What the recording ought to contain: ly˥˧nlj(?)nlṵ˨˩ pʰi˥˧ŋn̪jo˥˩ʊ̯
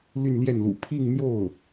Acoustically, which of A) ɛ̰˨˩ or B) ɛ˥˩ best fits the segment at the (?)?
B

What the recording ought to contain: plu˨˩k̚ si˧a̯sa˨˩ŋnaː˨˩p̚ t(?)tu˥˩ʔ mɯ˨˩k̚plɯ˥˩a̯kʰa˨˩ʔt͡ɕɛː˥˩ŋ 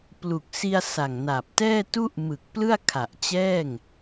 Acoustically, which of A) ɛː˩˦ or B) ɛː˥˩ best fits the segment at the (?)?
B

